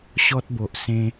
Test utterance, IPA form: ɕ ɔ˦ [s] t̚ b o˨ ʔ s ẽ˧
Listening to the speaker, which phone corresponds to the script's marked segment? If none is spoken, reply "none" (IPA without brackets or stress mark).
none